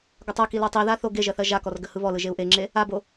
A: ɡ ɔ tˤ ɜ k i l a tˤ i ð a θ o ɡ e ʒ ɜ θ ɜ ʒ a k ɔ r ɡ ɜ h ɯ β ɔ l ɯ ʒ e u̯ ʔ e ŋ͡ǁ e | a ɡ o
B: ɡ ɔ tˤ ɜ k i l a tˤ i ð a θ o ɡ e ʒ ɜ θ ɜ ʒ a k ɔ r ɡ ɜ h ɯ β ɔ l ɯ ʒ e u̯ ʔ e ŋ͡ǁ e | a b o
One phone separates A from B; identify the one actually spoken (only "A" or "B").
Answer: B